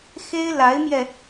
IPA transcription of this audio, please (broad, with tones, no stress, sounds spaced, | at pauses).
x e˥ ɪ̯ l a˧˥ ɪ̯ m j ɛ˧